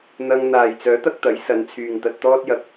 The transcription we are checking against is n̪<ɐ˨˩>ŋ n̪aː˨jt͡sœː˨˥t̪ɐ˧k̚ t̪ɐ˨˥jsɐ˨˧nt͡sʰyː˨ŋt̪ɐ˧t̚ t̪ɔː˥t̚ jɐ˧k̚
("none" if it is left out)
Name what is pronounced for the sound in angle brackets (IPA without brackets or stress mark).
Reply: ɐ˧